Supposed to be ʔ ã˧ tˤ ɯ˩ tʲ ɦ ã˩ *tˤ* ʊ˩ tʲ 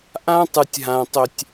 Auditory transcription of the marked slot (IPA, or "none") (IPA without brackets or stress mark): tˤ